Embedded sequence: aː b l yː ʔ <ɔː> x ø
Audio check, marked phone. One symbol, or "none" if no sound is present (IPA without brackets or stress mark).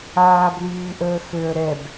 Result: əː